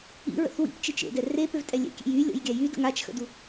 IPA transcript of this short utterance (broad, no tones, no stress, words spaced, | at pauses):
ḭɹə̰θ wḭpt͡ʃit͡ʃ ḛdɛ repøvtʼɛ lʲɛ̰kʲɛ̰j ylʲɔ̰jɡʲa jydə̰ ŋat͡ʃxə̰du